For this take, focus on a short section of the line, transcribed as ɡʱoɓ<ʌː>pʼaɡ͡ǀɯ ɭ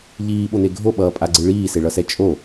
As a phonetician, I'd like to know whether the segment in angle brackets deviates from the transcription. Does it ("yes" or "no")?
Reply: no